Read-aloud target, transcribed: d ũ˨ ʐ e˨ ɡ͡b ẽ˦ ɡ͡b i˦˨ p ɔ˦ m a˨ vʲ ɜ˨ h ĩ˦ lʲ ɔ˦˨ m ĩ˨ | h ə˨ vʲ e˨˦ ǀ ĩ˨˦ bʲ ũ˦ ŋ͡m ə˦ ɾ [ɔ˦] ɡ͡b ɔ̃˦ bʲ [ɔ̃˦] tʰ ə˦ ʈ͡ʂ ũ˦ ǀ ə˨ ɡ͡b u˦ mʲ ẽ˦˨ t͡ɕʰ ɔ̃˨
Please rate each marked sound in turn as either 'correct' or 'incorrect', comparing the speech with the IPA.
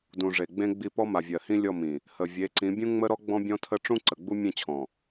correct, correct

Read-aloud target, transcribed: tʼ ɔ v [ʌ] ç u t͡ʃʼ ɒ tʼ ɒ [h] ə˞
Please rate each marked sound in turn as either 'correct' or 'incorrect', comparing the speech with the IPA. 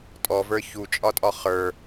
incorrect, incorrect

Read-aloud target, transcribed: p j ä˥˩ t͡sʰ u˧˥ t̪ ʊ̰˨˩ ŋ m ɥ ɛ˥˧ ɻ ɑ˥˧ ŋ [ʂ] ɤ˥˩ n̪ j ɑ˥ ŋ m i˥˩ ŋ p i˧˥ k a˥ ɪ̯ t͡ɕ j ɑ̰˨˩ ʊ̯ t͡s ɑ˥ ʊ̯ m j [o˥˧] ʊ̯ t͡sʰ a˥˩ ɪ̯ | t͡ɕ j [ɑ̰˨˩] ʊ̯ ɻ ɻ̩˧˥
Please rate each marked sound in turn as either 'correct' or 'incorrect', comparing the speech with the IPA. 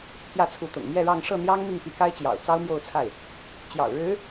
correct, correct, correct

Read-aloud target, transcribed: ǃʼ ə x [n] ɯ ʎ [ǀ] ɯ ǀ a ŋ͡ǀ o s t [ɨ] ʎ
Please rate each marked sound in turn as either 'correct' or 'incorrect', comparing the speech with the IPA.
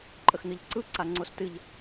correct, correct, correct

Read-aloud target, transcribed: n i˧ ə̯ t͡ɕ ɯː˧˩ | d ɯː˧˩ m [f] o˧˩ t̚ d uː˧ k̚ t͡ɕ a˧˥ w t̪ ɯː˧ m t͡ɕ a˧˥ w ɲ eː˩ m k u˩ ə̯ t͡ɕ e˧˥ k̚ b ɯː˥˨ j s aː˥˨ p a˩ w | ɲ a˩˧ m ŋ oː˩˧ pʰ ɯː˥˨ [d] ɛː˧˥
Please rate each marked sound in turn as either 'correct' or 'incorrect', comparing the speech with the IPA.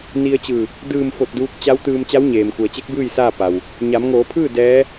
correct, correct

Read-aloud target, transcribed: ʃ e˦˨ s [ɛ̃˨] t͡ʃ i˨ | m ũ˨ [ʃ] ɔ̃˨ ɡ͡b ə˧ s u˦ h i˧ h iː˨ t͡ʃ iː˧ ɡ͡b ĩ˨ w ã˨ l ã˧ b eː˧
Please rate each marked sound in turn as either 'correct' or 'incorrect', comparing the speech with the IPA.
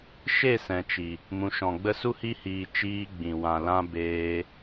correct, correct

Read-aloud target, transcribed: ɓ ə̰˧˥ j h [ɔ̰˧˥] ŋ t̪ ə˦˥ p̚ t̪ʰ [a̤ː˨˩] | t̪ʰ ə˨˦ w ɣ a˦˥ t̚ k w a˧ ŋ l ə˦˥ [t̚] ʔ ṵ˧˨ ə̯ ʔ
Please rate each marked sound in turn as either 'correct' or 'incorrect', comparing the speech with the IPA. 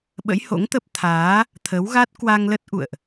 incorrect, incorrect, correct

